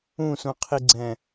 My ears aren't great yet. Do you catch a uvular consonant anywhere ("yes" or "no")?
yes